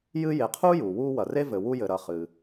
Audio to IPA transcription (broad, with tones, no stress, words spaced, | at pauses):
jɨ˦ je˨qʰuː˥juː˩ wuː˦wɐ˩re˥ vɘ˨wu˦jɘ˨ ɾɐ˨χɨ˩